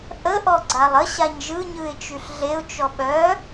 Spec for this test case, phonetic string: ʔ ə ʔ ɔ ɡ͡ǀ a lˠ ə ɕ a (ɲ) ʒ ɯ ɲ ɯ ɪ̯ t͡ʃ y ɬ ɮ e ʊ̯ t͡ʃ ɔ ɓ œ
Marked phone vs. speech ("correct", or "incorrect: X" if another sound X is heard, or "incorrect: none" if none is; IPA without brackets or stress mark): correct